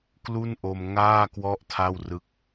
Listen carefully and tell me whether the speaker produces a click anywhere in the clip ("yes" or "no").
no